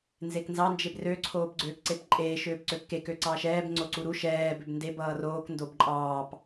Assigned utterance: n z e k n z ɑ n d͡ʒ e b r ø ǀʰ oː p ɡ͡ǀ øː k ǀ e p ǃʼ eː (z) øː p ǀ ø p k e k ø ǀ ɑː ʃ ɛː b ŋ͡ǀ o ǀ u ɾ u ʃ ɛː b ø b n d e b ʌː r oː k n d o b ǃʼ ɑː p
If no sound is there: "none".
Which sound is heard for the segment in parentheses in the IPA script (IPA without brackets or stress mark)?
ʃ